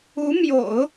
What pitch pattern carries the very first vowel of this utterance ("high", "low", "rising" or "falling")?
rising